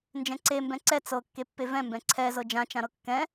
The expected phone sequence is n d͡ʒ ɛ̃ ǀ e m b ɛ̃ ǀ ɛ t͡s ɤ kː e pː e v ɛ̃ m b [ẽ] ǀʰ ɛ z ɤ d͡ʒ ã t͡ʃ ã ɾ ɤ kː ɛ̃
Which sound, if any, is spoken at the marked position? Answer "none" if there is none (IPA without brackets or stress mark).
ɛ̃